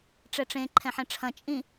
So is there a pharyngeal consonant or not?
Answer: yes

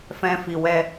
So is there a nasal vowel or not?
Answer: yes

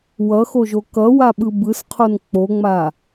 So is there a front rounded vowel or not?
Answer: no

